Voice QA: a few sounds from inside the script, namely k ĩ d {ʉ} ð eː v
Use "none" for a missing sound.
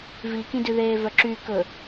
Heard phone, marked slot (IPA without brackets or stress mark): ʉ